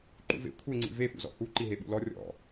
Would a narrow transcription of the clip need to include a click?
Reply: yes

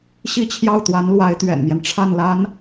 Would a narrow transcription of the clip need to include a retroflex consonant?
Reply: yes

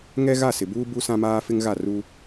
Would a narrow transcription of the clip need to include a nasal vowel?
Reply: yes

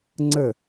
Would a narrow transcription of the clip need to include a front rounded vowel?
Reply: no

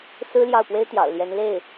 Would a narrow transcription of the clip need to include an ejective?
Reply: no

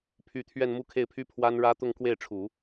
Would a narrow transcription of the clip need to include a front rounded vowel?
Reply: yes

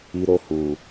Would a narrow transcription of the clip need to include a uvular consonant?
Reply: no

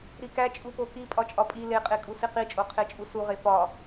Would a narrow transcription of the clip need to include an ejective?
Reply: yes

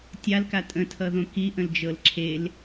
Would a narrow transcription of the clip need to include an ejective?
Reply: yes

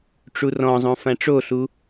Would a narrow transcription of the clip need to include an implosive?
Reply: no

